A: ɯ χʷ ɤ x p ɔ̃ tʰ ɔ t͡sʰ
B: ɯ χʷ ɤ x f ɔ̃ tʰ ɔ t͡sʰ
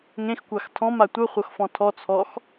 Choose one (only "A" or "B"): B